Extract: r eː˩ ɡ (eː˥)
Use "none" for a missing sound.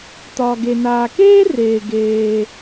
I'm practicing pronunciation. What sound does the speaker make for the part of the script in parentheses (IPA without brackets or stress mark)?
eː˩